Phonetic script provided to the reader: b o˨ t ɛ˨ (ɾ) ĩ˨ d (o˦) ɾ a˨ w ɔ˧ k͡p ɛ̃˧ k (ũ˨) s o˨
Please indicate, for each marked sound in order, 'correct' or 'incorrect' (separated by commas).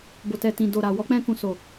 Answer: incorrect, incorrect, correct